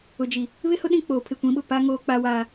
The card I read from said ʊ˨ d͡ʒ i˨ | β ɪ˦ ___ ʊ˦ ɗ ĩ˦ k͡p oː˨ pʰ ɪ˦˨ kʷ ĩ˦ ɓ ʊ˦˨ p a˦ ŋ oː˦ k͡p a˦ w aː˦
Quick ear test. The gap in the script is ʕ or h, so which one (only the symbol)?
h